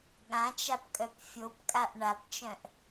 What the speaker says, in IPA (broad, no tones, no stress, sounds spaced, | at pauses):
ɠ ã t͡ʃ a p kʼ œ p fʲ o p kʼ a ʔ ɳ a p t͡ʃ œ̃ ʔ